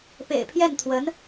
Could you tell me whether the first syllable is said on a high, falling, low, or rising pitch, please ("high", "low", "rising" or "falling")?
low